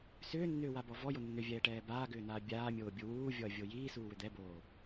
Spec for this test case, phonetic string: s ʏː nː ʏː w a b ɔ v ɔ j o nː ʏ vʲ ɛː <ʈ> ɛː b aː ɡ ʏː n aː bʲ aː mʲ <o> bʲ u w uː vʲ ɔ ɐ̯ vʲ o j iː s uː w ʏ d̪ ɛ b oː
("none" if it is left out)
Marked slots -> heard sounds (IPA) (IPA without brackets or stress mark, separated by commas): ʈ, oː